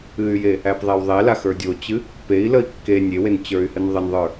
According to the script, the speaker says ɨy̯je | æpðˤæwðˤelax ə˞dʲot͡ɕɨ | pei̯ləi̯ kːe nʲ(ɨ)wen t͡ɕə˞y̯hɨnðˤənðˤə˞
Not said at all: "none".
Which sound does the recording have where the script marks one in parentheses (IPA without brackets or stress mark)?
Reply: e